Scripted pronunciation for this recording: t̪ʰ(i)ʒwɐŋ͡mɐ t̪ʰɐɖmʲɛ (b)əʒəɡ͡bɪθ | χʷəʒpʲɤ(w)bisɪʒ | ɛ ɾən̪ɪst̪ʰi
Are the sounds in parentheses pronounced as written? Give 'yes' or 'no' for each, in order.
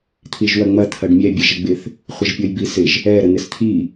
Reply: yes, no, no

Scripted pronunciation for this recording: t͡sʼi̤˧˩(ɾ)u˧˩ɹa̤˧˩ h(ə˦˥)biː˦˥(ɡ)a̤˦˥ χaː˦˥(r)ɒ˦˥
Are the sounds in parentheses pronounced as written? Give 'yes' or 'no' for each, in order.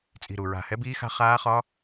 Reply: yes, no, no, no

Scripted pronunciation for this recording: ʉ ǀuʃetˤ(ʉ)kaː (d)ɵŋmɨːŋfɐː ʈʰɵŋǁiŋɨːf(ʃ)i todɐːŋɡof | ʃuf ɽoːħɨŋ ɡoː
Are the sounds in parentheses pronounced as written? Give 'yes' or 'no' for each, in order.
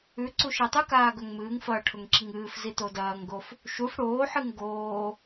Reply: yes, no, no

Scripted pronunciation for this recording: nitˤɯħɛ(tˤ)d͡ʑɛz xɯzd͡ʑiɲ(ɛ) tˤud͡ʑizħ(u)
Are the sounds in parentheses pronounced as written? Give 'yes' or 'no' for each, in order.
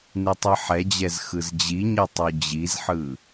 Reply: no, no, no

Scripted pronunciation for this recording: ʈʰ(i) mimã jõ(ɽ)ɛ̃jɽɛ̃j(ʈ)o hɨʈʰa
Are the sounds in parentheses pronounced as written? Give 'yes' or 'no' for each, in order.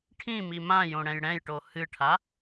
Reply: no, yes, yes

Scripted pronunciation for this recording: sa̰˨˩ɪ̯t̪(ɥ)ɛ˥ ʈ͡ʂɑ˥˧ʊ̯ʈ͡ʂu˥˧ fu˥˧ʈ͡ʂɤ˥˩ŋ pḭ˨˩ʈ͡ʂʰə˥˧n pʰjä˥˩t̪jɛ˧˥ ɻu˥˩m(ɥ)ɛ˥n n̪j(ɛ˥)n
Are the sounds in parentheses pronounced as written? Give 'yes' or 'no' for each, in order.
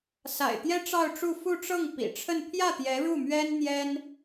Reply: no, yes, yes

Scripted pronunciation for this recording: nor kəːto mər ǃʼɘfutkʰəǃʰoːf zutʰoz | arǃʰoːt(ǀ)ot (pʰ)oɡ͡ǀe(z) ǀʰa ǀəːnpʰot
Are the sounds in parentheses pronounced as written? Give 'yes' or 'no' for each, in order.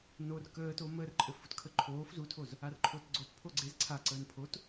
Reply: no, yes, yes

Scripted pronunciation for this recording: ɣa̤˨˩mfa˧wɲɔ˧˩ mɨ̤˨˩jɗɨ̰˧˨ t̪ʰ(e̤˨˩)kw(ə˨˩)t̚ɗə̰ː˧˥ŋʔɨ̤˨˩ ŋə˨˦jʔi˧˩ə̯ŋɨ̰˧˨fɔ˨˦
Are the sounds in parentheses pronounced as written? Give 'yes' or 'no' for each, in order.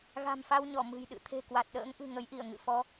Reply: yes, no

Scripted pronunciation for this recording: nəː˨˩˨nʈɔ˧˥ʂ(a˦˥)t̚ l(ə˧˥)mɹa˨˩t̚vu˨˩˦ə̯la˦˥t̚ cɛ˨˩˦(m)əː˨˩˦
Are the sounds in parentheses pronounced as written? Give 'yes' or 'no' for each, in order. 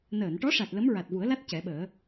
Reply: no, yes, no

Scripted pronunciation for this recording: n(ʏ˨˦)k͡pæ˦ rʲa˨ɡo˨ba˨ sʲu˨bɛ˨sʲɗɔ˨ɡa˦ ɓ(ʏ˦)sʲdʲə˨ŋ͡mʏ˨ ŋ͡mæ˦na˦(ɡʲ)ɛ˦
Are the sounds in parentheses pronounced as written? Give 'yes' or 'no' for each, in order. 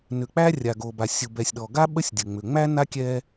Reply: no, no, no

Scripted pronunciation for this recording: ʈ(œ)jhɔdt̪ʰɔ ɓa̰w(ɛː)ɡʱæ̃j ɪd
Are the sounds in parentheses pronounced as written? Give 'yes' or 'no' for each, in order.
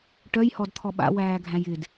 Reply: yes, no

